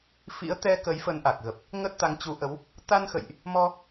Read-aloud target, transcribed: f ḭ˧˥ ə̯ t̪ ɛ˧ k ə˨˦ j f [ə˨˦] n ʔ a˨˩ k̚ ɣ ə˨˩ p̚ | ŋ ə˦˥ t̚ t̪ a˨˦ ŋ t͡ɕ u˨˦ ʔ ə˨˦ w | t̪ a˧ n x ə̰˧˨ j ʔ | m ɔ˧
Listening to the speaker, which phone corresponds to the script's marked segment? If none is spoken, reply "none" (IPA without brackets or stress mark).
ə˨˦